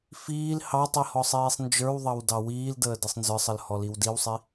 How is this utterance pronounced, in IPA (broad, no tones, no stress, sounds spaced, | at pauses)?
f iː l h ɑ tˤ i h ɔ sˤ iː sˤ n d͡ʒ ə˞ w ðˤ ɑ w d ɑ w iː l d əː d ɯ sˤ n z ə˞ sˤ ə l h ɔ l i w d i w sˤ i